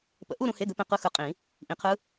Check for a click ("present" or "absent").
absent